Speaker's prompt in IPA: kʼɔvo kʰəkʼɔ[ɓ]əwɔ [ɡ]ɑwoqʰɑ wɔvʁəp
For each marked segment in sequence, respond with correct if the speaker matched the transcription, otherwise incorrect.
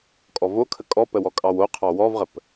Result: incorrect: p, incorrect: kʼ

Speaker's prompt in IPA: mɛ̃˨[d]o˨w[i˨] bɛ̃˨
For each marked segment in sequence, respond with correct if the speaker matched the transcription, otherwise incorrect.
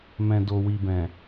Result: correct, correct

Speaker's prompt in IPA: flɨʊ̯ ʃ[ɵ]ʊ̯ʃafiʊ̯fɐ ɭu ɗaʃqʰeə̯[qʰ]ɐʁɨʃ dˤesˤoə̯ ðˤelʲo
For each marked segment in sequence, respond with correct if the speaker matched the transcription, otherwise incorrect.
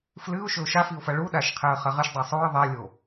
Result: correct, incorrect: χ

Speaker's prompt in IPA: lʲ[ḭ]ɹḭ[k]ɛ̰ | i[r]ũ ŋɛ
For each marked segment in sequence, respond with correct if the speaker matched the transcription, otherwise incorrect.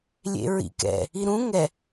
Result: incorrect: ḛ, correct, incorrect: ɾ

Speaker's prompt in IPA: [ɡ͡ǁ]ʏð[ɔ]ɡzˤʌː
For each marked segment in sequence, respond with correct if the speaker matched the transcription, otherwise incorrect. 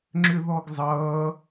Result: incorrect: ŋ͡ǁ, correct

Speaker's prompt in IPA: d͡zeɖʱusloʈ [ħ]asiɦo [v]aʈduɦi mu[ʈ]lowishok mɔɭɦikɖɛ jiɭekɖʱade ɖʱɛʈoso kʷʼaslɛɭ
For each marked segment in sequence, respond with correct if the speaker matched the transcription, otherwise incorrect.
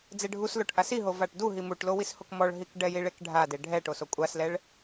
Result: incorrect: ʔ, correct, correct

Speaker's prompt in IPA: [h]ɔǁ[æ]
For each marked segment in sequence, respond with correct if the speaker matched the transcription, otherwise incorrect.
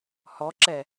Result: correct, incorrect: ɛ

